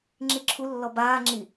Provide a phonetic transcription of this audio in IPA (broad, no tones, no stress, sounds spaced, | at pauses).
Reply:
ŋ͡ǁ i ǁʰ u lː ɔ b aː ŋ͡ǁ i